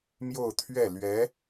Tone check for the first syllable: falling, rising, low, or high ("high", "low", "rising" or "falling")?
falling